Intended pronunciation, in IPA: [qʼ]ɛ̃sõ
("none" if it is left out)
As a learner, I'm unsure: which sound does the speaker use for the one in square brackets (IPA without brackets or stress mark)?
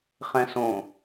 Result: χ